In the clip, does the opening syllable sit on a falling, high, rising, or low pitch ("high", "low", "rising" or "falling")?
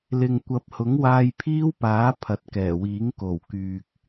low